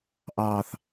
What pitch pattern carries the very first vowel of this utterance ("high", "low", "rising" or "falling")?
low